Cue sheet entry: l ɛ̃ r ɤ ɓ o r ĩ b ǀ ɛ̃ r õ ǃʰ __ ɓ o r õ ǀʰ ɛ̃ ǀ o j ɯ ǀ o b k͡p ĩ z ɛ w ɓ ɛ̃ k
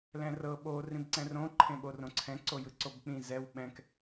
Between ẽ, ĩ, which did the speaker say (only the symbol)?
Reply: ẽ